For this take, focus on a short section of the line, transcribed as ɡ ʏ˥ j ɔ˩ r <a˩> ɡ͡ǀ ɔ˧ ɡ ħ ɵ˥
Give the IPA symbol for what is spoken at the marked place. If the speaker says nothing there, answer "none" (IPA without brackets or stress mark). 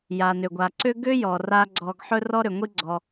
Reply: a˧